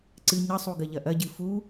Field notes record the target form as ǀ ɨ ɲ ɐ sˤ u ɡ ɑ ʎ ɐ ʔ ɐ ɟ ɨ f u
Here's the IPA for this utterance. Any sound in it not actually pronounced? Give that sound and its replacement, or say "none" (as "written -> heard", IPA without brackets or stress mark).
ɑ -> ɐ